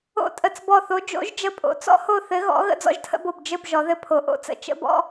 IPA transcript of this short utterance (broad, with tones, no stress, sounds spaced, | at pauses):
o̰˦˨ tʼ ə˦˨ t͡s b ɔ˦˨ θ o˧˥ d͡ʒ o̰˧˥ ʒ d͡ʒ ə˧˥ pʼ o̰˩˥ t͡s ɔ̰˥ h o˦˨ θ ɘ˧˥ ɣ ɔ̰˧˥ ɣ ə̰˥ d͡z ɔ̰˥ ʒ tʰ ə̰˥ b o˦˨ b d͡ʒ ɘ˦˨ b ʒ ɔ˩˧ ð ɘ˦˨ pʰ o˩˧ ʔ o̰˧˥ t͡s ə̰˩˧ t͡ʃ ə̰˧˥ b ɔ̰˥